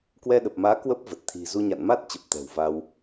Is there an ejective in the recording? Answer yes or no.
no